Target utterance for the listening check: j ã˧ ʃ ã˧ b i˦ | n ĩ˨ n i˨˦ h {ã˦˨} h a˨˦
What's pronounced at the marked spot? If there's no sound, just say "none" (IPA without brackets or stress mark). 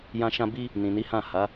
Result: ã˦˨